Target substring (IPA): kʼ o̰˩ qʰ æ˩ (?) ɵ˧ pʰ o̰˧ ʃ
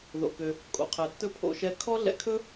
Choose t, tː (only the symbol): tː